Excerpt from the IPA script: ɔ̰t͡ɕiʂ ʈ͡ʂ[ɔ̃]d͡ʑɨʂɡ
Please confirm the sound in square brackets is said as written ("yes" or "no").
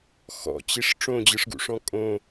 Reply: no